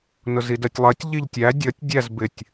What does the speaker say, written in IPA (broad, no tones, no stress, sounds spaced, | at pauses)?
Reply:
n ʊ z i d ɜ tʲ lˠ ɜ tʲ ʎ i ʎ tʲ æ dʲ ʌ tʲ dʲ æ z b ɪ tʲ